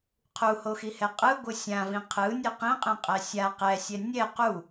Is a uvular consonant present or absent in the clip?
present